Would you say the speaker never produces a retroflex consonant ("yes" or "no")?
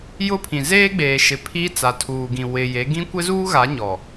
yes